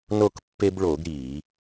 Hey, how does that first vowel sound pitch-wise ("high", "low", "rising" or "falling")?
falling